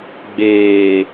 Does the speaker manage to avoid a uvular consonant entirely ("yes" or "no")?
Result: yes